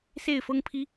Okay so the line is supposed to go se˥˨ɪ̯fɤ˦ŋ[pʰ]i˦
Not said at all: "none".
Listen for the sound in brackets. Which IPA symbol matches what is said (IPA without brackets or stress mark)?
pʰ